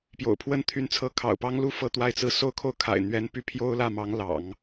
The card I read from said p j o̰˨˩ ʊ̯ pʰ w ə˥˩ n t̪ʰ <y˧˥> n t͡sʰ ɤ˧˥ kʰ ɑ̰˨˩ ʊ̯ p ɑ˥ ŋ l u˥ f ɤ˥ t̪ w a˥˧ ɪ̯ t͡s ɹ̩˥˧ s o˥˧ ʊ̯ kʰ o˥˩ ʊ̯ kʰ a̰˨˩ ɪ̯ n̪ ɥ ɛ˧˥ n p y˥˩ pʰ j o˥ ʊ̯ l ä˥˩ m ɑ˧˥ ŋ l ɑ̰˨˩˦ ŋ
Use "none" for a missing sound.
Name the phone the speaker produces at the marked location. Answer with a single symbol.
y˧˥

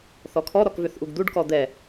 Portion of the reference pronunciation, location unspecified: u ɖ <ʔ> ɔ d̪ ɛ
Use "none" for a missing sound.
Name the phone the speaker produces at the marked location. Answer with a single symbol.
k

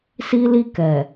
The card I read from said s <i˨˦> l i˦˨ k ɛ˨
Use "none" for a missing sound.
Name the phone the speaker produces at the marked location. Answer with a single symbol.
i˦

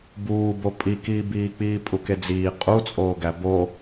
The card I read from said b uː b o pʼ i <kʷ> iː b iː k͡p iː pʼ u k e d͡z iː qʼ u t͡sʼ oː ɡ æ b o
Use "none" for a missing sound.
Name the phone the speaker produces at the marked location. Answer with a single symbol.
k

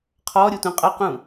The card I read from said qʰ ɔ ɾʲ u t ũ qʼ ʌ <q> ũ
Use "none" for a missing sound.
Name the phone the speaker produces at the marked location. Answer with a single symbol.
q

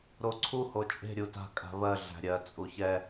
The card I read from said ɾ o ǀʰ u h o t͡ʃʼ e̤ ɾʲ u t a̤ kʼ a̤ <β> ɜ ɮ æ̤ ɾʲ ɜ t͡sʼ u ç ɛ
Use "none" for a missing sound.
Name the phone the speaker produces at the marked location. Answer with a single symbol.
β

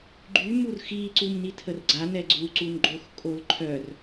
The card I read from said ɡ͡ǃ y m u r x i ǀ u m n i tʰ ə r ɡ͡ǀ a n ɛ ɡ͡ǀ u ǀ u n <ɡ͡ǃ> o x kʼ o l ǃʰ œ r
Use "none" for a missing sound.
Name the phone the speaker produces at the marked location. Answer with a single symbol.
ɡ͡ǃ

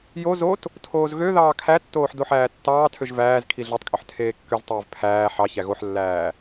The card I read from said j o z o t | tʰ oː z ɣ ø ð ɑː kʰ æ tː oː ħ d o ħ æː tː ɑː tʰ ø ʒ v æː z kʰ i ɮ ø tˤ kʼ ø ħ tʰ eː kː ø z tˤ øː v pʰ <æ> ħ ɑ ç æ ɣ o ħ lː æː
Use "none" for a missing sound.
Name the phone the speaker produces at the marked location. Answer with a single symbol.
æː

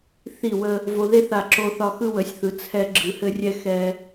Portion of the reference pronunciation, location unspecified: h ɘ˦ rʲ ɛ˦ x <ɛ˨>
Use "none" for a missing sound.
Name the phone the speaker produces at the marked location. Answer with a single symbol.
ɛ˦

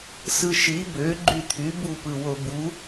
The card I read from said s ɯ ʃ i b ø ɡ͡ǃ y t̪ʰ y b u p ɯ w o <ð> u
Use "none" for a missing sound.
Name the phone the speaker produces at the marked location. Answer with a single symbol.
b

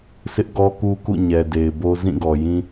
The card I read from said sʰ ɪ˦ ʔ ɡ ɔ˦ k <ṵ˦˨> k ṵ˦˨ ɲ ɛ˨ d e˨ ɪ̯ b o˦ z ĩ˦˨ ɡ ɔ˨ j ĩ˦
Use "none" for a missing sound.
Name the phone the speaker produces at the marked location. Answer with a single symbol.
u˦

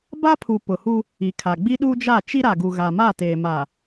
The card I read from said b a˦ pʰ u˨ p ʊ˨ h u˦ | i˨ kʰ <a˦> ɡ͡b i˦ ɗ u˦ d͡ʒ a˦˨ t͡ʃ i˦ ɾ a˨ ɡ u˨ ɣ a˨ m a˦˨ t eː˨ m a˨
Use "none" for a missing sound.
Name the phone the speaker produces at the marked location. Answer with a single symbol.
a˨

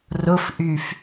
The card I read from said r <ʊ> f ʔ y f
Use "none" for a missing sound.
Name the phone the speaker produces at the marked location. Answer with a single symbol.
ʊ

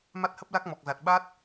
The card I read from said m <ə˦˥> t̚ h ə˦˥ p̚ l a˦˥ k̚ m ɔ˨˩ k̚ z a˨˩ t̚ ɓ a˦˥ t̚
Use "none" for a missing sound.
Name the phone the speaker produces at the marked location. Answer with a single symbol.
a˦˥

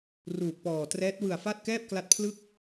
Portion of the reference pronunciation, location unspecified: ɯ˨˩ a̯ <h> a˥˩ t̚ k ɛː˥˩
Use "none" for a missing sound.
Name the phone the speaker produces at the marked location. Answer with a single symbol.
f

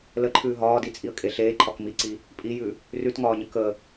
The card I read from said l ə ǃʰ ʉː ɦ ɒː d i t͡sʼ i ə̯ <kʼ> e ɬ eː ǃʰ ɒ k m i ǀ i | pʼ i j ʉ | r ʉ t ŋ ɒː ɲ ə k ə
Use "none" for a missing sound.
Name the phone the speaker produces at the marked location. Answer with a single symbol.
kʼ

